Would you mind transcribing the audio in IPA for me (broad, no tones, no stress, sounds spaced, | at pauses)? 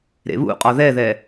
ɾ ḛ β ṵ qʼ ɒ ð ɛ ð ɛ